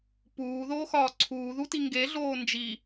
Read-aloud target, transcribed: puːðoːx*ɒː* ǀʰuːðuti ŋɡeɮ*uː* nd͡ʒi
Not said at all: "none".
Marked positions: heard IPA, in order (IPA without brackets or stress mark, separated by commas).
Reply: ɒː, oː